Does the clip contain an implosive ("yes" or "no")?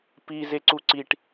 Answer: no